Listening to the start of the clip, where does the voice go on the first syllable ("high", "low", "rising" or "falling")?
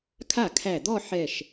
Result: falling